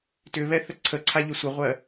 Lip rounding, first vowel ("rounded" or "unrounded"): rounded